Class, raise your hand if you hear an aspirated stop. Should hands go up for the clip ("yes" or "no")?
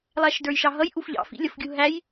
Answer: no